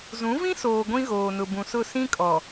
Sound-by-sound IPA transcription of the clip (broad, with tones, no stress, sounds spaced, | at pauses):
z ũ˨˦ v ĩ˦ s oː˨ ɡʷ ĩ˦ ɣ oː˨ n ʊ˨ b ũ˨ s ʊ˦˨ s ĩ˦ kʼ ɔ˨